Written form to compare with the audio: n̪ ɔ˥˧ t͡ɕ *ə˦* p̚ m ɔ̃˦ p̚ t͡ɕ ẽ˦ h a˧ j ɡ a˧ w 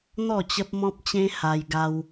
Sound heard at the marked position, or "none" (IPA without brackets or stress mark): ə˦